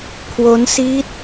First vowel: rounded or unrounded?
rounded